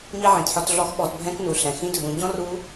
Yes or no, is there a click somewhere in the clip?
no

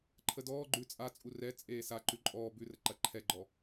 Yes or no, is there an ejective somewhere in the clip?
yes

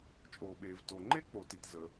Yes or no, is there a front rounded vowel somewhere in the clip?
no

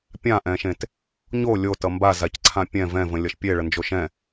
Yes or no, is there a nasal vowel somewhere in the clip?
yes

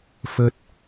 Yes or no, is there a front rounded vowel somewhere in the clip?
no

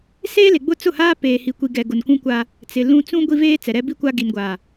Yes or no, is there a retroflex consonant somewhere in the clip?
no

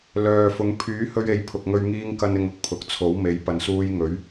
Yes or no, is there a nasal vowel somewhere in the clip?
no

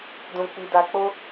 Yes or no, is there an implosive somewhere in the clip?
no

